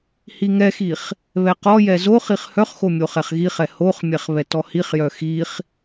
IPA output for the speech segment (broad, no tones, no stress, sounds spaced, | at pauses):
h i ŋ ɛ x i χ | β ɛ q ɔ j ɛ z o χ i χ h œ χ x o mʲ o χ ɛ χ ɣ i χ ɛ h o χ mʲ ɛ χ β ɛ t ɔ h i χ j œ x i χ